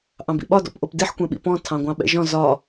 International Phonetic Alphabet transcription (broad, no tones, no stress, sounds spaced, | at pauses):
ʔ ɑ̃ b ḭ ɓ ɒ d ɔ̰ p ʔ o p d i ħ kʷ ɛ̃ ɓ ḭ p ɔ̃ tʰ ɑ̃ ɡʷ ɑ̃ ɓ ɛ̰ ʒ ɔ̃ z ɒ